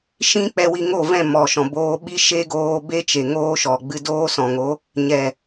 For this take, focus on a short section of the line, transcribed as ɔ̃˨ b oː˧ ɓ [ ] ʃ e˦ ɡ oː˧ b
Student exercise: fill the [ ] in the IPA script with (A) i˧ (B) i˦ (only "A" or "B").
B